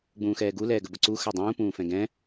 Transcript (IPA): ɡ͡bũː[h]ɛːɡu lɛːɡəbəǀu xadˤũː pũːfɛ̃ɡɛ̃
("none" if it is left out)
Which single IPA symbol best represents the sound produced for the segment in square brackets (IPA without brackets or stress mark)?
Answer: x